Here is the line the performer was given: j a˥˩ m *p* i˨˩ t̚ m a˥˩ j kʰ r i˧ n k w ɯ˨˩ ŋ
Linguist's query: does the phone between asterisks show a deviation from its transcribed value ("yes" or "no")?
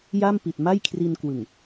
no